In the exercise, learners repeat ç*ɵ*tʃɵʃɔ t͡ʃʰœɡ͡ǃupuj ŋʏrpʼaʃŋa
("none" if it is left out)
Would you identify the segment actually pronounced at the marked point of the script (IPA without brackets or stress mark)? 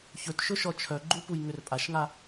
ɵ